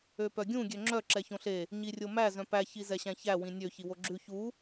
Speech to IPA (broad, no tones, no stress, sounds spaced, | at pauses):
ø p œ ɡʲ ũ ɡʲ ø ŋ͡ǁ œ ǁ ɛ ç õ ɬ e | ɲ i rʲ o m æ z œ̃ p æ ç i z ɛ ɕ æ̃ ç æ w ĩ nʲ ø ç i w o ɡ͡ǁ ʉ ç u